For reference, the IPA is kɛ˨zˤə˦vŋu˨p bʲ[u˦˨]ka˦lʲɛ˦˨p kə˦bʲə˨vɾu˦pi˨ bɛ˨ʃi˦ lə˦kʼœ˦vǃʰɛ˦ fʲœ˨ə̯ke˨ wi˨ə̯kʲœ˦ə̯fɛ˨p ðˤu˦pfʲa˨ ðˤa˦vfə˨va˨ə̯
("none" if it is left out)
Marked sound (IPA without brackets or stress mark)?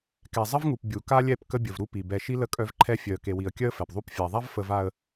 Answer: u˨